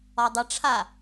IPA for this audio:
ɒ dˤ ʌ ʈ͡ʂʰ a

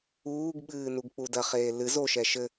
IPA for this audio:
uː ɡ ɓ ɨː n u ɡ k͡p u d ɐ χ eː l ɨ z o ʃ ɛ ʃ ɘ

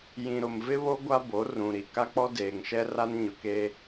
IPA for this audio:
j ĩ˨ ɾ ʊ˨ m v ɪ˦ β o˦ ɡʷ a˦ b o˨˦ r ũ˨ ɾ i˨ k a˦ k͡p ɔ˦ d eː˨ ŋ ʃ ɛ˦ r a˦ n ɲ ʊ˨ k e˦

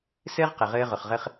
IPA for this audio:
s ɘː˦ ʁ q ɘ˨ ʁ ɘː˧ ʁ ʊ˨ χ ʁ ɘ˧ χ

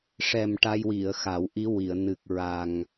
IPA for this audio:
ʂ ɛ˨˩ m ʈ a˧ j w i˨˩˨ ə̯ x a˨˩˦ w ʔ i˧˥ w i˨˩˨ ə̯ n ɨ˨˩ k̚ ɹ a˨˩ ŋ

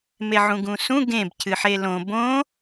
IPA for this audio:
m e ʕ ũ ɡ ũ s ũ ɡ ẽ b cʰ ɨ ħ e l õ b õ

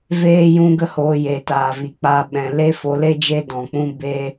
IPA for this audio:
v eː˦ j ũ˦ ɡ ə˦ h oː˧ j eː˨ t aː˨ v i˨ k͡p a˧ ɓ ɛ̃˨ l e˦ f o˨˦ l e˦ d͡ʒ e˦ d ɔ̃˨ k͡p ũ˦ b e˦

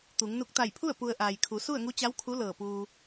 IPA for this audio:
t̪ u˩˧ ŋ n u˧˩ k̚ t̪ a˧˩ j pʰ u˥˨ ə̯ p u˧ ə̯ ʔ aː˩ j kʰ u˩˧ s u˥˨ ə̯ ŋ u˧˥ t͡ɕ a˧˥ w kʰ u˧˥ l ɤː˧˩ p uː˧

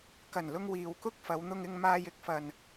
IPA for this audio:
k ɐ˨˩ n l ʊ˧ ŋ w iː˨ w k ʊ˥ k̚ f ɐ˨˧ w n̪ ʊ˧ ŋ ɪ˧ ŋ m aː˧ j ɪ˨˥ k̚ f ɐ˨ n

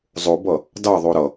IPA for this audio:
zˤ o b ʌ | d ɑ ðˤ o ɾ ʌ

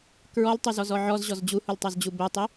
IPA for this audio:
k ɹ ɔ l tˤ u z ɔ z ɔ ʕ ɔ z ʑ ɔ z d͡ʑ u h u l tˤ ɑ z d͡ʑ u b ɛ tˤ i

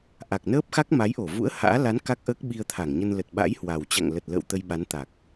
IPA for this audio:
ʔ a˨˩ k̚ n əː˦˥ p̚ x a˦˥ k̚ m a˨˦ j ʔ o˧˩ v ṵ˧˥ ə̯ h a̰ː˧˥ l a˨˦ n k a˦˥ k̚ ʔ əː˦˥ k̚ ɓ i˧ ə̯ t̪ʰ a˧˩ ŋ ɲ ə˧ n l ə˨˩ t̚ ɓ a̰˧˥ j h w a˨˩ w t͡ɕ a̰˧˨ ŋ l ə˨˩ t̚ l ə̰ː˧˨ w t̪ ə˧ j ɓ a˨˦ n t̪ a˨˩ k̚

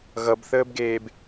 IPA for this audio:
ɣ ʌ b θ əː b ɡ eː b

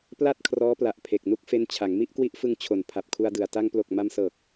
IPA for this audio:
p l a˥˩ t̚ kʰ r ɔː˦˥ p l a˨˩ ʔ pʰ e˨˩ k̚ n u˦˥ k̚ f e˦˥ n t͡ɕʰ a˩˦ ŋ m i˥˩ ʔ k w i˦˥ ʔ f ɯ˧ ŋ t͡ɕʰ o˨˩ n pʰ a˨˩ p̚ kʰ u˧ a̯ d ɯ˨˩ a̯ t a˧ ŋ p l o˨˩ k̚ m a˧ m s ɤː˨˩ k̚

